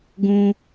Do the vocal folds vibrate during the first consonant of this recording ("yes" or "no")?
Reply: yes